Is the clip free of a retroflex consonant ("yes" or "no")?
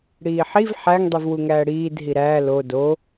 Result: no